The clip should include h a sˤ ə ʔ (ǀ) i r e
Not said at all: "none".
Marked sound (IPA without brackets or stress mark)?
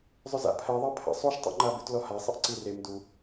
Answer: ǀ